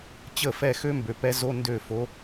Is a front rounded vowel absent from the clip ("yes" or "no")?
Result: no